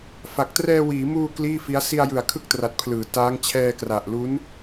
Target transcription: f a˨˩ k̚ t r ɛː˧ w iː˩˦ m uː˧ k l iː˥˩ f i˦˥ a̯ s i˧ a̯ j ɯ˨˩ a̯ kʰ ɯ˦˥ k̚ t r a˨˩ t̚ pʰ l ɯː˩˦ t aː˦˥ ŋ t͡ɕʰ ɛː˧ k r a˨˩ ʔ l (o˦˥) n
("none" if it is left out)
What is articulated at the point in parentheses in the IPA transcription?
u˦˥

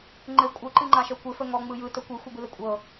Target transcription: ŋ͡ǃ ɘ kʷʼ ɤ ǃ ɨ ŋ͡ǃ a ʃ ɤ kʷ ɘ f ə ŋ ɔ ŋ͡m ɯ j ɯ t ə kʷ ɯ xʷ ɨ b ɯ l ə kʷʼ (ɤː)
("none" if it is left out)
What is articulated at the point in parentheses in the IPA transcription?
ɤ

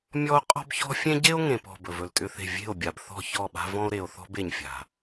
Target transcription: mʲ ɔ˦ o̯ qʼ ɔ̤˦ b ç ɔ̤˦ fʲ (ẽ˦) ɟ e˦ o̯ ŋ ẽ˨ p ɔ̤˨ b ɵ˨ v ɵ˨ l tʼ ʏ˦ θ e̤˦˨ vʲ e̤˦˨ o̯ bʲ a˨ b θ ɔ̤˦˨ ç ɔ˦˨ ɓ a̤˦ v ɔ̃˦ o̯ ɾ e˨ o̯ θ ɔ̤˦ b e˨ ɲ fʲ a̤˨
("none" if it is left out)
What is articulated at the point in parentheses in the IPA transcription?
ẽ˦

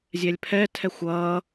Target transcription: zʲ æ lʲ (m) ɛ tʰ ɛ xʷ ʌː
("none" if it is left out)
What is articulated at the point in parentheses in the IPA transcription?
pʰ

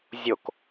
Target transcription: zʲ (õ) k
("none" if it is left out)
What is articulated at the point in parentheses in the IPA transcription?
o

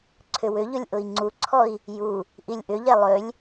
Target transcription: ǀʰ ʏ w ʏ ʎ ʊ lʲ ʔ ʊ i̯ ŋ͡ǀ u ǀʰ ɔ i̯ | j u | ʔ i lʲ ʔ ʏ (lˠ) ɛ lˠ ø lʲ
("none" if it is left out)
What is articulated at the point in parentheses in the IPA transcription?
ʎ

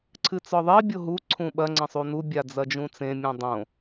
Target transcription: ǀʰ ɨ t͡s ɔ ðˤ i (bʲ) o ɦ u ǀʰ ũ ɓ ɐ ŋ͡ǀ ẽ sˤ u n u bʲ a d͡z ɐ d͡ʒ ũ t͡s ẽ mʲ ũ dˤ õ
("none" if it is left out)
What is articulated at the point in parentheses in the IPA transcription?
bʲ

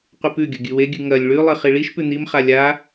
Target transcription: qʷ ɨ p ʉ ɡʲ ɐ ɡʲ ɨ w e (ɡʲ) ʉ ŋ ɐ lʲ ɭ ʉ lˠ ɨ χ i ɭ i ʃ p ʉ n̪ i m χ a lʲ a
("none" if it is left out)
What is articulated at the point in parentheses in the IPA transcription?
ɡʲ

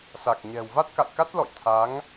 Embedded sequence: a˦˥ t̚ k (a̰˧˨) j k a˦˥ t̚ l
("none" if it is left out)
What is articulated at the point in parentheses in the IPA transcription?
a̰˧˨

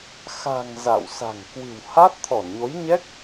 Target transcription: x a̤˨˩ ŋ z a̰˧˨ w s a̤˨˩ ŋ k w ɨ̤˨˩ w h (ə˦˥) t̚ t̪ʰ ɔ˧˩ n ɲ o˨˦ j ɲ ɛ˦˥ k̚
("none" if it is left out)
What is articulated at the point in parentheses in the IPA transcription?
a˦˥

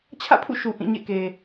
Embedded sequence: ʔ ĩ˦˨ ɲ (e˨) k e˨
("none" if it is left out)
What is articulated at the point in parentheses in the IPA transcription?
ḛ˦˨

